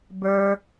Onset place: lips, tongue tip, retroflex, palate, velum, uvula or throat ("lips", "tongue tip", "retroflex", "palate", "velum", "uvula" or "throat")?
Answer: lips